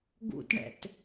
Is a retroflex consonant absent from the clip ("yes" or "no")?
no